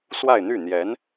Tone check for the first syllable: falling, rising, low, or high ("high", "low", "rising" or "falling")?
falling